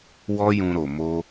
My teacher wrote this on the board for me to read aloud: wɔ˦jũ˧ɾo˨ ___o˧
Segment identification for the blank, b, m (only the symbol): m